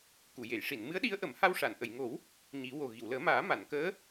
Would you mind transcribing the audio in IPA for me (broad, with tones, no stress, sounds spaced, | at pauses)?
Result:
k u˨˩˨ j e˨˩˨ j ʂ i˨˩˨ n m ɨ˧˥ ə̯ ɗ i˧˥ ə̯ ʔ ə˨˩˦ m h a˧ w ʂ a˨˩˨ n ʔ ə˨˩˨ j ŋ o˨˩˦ w | ɲ i˨˩˦ w o˨˩ ɣ i˨˩˨ w l əː˨˩˦ m aː˨˩˦ m a˨˩˨ n k əː˧˥